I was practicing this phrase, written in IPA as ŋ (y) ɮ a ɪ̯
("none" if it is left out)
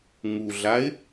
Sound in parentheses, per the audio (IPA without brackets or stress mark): u